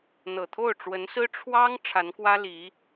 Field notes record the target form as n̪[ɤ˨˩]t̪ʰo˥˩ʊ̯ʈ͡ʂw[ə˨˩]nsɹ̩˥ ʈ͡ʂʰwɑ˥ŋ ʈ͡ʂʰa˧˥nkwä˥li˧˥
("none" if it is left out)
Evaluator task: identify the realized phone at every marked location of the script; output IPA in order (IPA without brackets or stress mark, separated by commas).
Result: ɤ˨˩, ə˧˥